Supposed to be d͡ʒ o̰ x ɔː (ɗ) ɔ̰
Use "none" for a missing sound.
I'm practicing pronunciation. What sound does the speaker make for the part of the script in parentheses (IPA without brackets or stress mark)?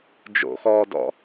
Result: d